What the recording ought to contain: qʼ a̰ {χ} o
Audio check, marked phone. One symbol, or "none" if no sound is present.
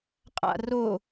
r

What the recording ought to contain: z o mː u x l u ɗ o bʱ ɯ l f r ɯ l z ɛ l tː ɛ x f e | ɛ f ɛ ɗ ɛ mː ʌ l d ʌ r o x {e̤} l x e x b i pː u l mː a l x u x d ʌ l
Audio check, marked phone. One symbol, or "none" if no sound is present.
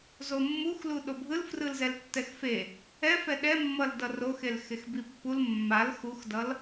e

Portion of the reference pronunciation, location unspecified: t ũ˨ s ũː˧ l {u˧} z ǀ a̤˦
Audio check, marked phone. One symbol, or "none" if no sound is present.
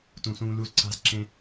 u˧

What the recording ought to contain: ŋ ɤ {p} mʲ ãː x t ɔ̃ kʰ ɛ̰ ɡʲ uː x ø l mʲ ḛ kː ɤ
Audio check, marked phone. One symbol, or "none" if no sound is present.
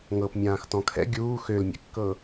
p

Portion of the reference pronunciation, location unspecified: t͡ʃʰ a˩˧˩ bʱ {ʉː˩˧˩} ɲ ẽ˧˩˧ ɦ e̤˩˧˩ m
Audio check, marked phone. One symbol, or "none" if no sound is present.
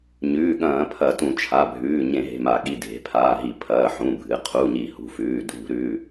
ʉː˩˧˩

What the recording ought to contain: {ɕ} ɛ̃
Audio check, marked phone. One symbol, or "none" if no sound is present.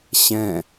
ɕ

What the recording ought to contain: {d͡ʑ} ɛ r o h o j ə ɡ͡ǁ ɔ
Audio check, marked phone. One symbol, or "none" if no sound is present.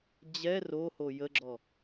d͡ʑ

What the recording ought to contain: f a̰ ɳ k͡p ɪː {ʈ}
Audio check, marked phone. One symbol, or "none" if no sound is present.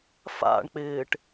ʈ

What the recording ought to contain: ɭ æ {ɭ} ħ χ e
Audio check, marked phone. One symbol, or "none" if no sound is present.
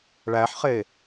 none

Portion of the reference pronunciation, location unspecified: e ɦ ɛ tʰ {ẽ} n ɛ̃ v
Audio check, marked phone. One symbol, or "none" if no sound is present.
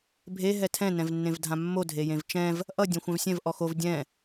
ɛ̃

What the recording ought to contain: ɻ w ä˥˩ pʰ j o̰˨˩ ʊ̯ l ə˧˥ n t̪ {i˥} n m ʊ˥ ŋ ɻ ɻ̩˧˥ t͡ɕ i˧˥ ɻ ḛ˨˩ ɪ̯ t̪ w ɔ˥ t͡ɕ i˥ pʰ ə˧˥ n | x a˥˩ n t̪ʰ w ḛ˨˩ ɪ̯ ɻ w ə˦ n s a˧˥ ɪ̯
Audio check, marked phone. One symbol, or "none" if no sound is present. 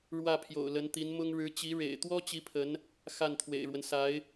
i˧˥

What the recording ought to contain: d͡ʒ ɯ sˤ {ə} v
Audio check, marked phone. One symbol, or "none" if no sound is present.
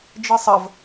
ə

